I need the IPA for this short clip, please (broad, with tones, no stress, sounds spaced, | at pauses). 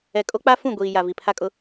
ɛ˨ kʼ o˦ k͡p a˦ f ũ˦˨ ɡʷ iː˨ j a˨ v i˨ pʰ a˦ kʼ ʊ˦